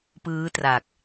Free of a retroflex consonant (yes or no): yes